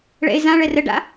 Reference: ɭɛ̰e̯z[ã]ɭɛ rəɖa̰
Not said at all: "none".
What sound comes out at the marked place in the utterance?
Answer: ã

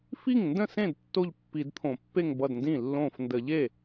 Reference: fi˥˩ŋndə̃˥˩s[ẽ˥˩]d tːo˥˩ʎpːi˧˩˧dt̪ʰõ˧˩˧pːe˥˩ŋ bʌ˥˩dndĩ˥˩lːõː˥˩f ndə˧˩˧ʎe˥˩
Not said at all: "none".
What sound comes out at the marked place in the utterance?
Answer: ẽ˥˩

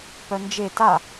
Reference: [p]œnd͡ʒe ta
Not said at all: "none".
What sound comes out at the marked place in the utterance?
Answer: p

